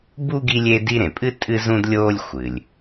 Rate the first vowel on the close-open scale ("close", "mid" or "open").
close